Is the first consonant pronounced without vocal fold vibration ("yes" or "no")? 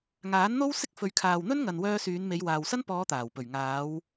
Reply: no